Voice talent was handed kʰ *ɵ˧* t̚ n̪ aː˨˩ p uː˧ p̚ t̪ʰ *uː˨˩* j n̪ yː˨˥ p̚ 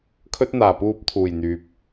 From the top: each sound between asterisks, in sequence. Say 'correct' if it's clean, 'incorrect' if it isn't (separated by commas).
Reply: incorrect, correct